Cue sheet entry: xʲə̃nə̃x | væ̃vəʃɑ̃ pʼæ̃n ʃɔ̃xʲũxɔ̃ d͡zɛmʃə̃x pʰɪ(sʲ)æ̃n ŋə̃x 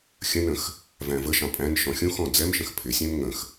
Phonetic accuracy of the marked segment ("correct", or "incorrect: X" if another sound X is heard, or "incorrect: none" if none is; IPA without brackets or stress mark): correct